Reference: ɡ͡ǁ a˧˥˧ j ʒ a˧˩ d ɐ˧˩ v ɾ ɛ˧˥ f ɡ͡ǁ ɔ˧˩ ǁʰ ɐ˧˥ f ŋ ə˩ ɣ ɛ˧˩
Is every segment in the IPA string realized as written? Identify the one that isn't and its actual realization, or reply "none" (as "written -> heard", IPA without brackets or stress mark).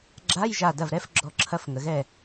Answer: none